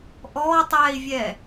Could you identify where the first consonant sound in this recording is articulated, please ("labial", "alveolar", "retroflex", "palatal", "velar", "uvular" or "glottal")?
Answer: glottal